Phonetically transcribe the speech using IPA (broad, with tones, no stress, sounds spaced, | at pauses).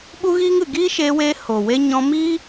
ɓ u˦ ɣ iː˦ ŋ ɨ˨ ɡ iː˦ ʃ eː˧ w eː˧ h o˨ w e˦ ɲ ɔ̃˧ m iː˦